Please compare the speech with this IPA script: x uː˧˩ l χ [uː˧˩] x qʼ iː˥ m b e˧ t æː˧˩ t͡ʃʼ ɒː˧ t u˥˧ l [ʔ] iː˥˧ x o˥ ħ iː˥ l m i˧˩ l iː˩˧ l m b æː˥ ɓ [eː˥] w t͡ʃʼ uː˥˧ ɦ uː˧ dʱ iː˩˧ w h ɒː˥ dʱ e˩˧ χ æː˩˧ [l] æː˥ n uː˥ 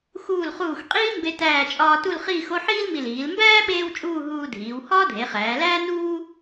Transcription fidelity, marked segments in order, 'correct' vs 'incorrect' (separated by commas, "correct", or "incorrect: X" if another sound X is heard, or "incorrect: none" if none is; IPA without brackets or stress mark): correct, incorrect: χ, correct, correct